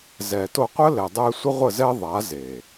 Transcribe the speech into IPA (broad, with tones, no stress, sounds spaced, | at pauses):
z ɛ˨ t o˧ qʷ ə˦ l ɛ˨ dˤ ɛ˧ sʷ ə˦ ʁʷ ə˦˨ z ɛ˦ ðˤ a˨˦ z e˨